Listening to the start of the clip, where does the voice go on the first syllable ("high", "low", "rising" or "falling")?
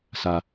low